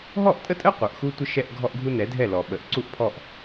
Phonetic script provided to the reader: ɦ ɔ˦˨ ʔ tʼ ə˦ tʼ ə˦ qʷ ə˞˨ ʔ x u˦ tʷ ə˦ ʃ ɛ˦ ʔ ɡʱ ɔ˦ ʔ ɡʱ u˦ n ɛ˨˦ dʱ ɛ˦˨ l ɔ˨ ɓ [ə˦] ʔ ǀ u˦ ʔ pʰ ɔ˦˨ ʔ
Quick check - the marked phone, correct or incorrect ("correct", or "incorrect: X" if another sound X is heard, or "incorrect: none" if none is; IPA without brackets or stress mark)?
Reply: incorrect: ə˨